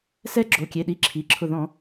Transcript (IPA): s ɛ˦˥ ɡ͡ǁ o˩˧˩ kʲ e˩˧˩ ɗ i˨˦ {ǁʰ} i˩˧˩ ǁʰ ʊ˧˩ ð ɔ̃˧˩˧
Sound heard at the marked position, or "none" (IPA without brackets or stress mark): ǁʰ